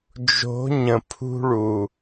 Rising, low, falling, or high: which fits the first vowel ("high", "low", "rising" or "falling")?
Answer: rising